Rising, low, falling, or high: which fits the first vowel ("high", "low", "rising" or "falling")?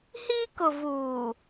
high